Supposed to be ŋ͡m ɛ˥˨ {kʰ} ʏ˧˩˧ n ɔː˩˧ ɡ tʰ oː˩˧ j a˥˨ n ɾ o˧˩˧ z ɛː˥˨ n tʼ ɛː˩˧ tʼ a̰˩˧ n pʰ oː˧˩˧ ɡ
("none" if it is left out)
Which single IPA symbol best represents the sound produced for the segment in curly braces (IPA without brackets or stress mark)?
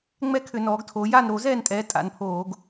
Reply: kʰ